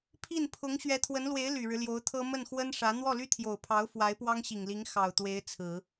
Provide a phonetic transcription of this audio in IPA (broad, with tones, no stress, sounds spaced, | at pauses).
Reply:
pʰ i˥˩ n pʰ ʊ˧˥ ŋ ɕ ɥ ɛ˧˥ t̪ʰ w ə˧˥ n l w e˧˥ ɪ̯ l y˨˩ ɻ ɻ̩˦ l j o˧˥ ʊ̯ t̪ʰ ɤ˥ m ə˥˩ n x w ə˥ n ʂ ä˧˥ n̪ w ɔ˥˩ l y˥ t̪ʰ j o˨˩ ʊ̯ pʰ ɑ˧˥ ʊ̯ f w a˧˥ ɪ̯ p w ɑ˥ ŋ ɕ i˨˩ ŋ l i˧˥ ŋ x ɑ˨˩ ʊ̯ t̪ w e˧˥ ɪ̯ t͡sʰ ɹ̩˨˩˦